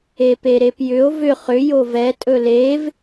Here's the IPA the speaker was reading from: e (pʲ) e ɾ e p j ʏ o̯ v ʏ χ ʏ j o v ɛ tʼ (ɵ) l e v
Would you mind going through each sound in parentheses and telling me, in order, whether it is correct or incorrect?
incorrect, correct

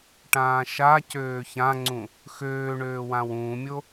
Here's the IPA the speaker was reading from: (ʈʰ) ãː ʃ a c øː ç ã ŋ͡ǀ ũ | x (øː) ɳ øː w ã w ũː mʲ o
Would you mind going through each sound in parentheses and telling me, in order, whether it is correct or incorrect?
incorrect, correct

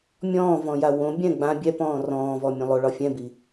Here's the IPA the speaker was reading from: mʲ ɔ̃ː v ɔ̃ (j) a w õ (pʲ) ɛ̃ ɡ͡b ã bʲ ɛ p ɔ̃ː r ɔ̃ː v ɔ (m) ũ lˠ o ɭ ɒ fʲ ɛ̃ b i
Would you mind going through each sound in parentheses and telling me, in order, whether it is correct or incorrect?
correct, incorrect, incorrect

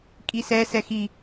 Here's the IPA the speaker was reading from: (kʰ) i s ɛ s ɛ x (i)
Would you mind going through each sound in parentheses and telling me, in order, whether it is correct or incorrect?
incorrect, correct

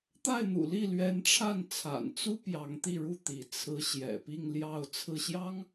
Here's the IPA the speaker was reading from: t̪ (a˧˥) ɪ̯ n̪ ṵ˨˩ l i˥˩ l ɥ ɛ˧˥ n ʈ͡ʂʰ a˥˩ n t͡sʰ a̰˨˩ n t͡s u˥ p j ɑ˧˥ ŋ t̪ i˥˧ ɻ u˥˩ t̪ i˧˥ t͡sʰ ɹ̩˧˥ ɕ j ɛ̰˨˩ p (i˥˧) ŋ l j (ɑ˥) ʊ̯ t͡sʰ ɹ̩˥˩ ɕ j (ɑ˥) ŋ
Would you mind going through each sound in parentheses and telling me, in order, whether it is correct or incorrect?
incorrect, correct, incorrect, correct

